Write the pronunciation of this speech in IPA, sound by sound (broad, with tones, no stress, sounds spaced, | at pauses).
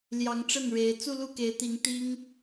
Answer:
l j ɑ˧˥ ŋ ʈ͡ʂ ə˥˩ n ɻ e˧˥ ɪ̯ t͡s u˥˧ l u˥˩ k e˧˥ ɪ̯ t̪ i˧˥ ŋ t̪ i˥ ŋ